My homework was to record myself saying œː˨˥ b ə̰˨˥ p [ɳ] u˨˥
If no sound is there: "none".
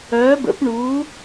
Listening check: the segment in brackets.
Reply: ɳ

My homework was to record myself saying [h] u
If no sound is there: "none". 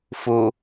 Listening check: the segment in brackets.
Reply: f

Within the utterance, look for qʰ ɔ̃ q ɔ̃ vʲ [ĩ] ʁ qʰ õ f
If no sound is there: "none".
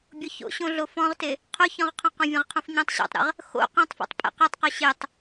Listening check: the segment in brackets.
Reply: ẽ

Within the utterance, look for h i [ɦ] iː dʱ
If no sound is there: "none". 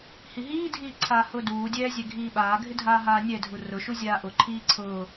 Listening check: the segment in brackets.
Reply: ɦ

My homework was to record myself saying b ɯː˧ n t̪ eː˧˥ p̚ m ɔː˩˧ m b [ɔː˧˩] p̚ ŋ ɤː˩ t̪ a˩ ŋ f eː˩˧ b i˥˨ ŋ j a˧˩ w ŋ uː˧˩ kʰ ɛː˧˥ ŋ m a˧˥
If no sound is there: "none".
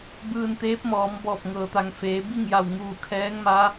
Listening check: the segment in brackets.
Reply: ɔː˧˩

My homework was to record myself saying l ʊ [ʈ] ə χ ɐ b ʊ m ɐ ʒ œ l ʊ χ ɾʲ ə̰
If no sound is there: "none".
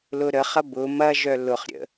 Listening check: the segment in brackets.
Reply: ɾ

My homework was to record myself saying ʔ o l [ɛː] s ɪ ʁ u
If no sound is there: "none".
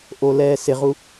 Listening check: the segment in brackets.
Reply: ɛː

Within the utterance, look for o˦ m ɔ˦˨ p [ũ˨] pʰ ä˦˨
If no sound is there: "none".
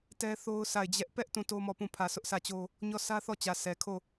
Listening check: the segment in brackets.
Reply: ũ˦˨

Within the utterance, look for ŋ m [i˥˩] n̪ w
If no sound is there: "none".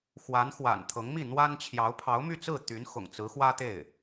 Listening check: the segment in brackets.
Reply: i˥˩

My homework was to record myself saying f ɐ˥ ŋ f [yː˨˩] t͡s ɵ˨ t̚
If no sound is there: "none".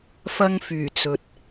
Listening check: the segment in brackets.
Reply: yː˨˩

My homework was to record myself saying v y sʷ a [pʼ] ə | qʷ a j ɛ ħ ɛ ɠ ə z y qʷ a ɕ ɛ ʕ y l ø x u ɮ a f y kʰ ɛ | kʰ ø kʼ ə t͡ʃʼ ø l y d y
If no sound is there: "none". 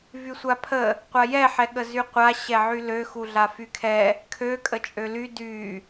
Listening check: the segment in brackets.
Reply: pʰ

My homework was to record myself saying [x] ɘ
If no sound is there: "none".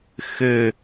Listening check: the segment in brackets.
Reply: x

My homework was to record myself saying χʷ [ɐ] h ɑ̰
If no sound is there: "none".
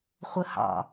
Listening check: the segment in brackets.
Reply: ə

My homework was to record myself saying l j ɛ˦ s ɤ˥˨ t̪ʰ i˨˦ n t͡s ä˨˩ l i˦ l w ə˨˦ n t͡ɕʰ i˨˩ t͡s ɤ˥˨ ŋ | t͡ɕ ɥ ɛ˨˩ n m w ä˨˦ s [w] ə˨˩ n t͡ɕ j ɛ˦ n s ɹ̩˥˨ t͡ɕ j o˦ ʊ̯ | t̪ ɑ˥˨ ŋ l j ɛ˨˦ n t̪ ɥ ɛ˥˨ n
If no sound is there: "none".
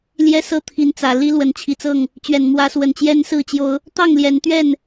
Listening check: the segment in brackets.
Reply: w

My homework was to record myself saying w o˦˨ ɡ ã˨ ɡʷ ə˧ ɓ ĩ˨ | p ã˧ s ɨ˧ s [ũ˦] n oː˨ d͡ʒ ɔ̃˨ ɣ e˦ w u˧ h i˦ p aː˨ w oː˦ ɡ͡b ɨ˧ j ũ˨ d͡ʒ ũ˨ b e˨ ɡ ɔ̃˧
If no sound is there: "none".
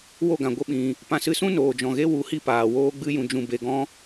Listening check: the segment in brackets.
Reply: ũ˦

